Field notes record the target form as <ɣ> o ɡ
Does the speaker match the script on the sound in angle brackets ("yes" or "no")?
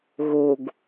yes